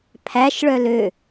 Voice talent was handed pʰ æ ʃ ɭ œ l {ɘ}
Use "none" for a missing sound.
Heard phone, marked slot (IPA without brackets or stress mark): ø